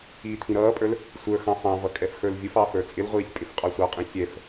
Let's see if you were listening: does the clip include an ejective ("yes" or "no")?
yes